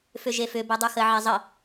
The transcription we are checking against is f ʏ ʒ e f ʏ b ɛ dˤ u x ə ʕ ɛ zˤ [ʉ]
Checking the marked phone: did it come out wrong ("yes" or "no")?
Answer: yes